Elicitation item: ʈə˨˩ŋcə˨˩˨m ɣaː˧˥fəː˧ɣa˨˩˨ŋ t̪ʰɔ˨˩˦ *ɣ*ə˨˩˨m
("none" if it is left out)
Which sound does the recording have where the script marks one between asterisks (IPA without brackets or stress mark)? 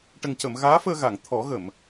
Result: ɣ